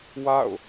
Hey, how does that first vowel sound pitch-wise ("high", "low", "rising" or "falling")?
falling